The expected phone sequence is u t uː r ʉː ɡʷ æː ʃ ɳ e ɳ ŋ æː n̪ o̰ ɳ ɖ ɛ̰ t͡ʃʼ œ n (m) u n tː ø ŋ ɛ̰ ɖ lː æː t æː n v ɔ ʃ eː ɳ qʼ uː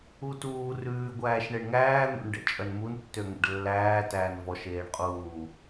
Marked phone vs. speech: correct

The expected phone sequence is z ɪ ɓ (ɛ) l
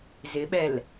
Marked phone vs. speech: correct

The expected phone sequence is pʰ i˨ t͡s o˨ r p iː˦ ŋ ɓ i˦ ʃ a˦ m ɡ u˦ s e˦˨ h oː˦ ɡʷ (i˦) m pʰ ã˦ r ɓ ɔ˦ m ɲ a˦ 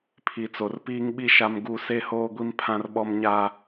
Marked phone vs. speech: correct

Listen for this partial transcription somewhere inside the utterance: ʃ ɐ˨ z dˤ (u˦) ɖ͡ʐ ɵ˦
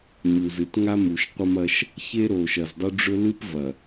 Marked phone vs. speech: correct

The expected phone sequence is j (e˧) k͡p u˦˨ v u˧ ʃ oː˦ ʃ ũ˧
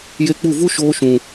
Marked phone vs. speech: correct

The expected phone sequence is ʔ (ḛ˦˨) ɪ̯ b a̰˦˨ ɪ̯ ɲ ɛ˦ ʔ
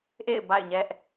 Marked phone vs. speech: correct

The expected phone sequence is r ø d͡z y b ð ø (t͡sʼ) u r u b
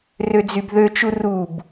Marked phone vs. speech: incorrect: t͡ʃ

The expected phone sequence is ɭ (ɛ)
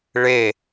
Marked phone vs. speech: incorrect: e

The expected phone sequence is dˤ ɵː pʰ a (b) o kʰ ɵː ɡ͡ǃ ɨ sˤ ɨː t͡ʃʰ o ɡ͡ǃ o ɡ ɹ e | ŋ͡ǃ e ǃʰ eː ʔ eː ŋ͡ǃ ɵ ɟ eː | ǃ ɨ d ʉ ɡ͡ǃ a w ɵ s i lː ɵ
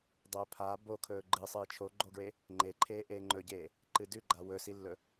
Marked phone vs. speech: correct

